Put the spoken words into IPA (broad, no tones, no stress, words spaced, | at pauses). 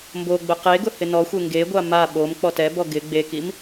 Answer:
mboɡ͡bʊ qeɡʊ hɪnɔxʷe ŋɡeɡʷa ma ɓom k͡pɔtɛbɔ ɡɪ ɡ͡bekim